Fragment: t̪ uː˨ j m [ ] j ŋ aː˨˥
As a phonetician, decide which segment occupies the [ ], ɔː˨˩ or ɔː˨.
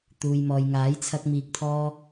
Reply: ɔː˨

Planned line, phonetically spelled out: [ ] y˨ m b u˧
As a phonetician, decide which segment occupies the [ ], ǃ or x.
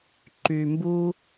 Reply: ǃ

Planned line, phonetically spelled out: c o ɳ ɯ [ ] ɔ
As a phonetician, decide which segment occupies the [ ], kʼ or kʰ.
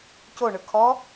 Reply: kʰ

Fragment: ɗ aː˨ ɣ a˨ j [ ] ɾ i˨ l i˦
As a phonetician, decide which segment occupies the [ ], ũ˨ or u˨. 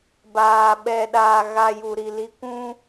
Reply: u˨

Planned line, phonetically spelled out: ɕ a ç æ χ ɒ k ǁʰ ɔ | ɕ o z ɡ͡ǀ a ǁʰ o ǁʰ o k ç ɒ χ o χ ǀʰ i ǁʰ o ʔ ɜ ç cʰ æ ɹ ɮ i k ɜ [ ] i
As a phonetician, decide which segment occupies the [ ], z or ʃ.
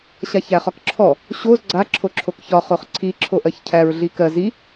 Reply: z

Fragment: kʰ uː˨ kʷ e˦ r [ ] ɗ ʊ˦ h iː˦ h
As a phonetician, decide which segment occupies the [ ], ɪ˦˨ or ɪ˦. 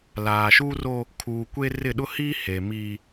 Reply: ɪ˦˨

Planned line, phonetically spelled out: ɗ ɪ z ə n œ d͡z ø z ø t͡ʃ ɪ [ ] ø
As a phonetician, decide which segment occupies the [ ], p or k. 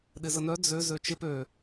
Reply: p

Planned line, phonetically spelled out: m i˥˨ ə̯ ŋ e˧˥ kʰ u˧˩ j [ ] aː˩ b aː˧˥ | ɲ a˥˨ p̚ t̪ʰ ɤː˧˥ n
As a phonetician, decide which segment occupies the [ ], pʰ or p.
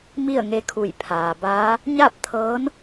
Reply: pʰ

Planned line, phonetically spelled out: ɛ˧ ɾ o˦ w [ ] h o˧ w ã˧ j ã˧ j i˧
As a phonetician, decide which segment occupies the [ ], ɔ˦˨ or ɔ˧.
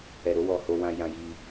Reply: ɔ˧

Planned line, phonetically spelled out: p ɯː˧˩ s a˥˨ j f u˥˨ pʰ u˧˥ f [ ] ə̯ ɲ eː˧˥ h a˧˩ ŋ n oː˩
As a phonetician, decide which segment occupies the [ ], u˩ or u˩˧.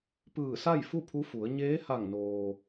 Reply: u˩˧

